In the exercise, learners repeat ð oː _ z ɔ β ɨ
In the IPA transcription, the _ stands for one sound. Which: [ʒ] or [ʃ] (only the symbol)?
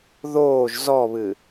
ʒ